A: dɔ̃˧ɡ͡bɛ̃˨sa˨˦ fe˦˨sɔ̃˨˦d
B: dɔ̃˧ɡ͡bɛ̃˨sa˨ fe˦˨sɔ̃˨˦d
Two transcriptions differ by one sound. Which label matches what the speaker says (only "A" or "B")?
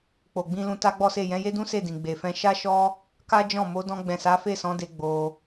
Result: A